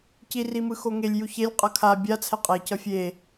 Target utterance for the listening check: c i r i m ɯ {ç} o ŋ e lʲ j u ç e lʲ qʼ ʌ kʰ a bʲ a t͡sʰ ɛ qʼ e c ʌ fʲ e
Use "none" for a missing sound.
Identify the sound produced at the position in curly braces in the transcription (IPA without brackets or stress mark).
x